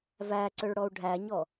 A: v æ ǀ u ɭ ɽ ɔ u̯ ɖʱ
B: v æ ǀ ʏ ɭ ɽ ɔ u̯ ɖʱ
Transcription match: B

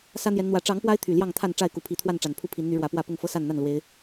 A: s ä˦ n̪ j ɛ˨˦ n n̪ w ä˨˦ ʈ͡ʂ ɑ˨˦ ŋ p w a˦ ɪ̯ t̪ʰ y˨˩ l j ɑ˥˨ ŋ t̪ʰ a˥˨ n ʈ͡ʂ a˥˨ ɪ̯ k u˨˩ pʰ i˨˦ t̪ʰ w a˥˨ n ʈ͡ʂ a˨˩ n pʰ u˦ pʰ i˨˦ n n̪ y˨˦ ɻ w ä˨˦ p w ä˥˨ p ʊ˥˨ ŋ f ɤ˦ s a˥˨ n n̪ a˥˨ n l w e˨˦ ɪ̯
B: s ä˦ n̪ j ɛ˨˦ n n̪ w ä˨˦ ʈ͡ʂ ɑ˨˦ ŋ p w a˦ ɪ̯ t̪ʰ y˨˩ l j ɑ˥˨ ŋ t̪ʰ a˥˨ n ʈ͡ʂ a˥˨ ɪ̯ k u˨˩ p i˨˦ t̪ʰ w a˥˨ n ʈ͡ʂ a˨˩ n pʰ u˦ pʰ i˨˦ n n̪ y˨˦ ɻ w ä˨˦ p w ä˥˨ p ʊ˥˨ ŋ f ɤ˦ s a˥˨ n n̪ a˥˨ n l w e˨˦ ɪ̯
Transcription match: A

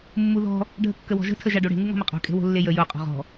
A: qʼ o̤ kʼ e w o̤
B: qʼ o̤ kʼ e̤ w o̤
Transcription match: B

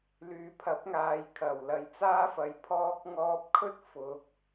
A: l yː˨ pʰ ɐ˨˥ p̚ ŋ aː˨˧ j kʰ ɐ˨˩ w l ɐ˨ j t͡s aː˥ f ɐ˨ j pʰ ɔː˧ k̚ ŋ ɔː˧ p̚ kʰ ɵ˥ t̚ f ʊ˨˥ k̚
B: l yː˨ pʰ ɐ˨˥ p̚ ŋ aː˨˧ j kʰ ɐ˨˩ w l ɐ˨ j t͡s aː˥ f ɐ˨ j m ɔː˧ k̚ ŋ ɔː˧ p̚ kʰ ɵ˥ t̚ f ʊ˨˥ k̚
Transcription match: A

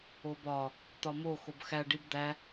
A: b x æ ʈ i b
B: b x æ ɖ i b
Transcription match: B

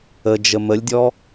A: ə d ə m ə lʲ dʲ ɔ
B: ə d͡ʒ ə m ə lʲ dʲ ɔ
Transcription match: B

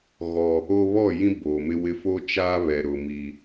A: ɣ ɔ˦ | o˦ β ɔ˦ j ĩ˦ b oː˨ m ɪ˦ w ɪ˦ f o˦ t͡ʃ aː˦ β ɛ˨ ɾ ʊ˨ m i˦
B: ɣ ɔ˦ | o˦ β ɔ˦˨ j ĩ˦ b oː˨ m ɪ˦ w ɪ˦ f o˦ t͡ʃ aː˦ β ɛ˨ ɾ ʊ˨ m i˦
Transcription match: B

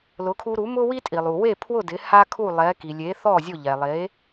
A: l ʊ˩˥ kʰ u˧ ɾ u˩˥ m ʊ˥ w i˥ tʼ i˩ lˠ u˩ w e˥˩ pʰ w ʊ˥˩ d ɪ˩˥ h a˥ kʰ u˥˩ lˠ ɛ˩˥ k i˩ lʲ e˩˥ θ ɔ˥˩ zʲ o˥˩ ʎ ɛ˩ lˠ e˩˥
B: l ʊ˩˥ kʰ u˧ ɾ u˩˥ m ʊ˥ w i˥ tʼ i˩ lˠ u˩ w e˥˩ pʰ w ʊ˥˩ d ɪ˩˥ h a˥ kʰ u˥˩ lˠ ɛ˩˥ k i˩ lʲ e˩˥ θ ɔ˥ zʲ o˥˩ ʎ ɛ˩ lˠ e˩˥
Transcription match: A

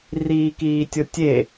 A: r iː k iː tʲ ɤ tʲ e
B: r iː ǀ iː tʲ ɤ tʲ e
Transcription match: A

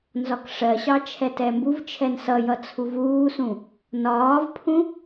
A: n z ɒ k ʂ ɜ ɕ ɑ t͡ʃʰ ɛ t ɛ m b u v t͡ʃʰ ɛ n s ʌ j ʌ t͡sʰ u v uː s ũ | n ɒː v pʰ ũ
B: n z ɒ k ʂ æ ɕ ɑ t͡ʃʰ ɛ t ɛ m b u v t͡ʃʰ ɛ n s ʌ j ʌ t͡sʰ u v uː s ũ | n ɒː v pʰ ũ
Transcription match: A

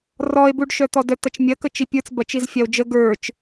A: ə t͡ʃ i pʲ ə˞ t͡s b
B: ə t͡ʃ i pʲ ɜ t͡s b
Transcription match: A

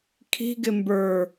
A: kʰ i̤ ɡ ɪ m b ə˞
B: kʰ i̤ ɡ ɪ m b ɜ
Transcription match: A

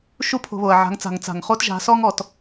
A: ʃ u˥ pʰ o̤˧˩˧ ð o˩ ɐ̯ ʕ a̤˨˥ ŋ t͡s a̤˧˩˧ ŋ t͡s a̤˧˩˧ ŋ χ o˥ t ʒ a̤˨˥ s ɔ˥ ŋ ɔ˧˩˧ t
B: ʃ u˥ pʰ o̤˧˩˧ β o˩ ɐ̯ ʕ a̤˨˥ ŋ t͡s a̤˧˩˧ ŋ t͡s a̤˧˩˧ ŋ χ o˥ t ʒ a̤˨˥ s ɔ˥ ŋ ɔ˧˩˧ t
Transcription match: B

